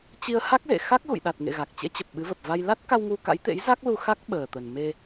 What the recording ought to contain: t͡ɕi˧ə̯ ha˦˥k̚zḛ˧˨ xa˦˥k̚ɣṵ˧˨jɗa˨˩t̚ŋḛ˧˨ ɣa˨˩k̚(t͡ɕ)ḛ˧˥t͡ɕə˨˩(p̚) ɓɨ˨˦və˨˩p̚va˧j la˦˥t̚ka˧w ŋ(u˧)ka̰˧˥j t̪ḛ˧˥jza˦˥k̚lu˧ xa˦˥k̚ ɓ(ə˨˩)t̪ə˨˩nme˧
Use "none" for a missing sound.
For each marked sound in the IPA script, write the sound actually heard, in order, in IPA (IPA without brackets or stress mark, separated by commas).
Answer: t͡ɕ, p̚, u˧, əː˨˩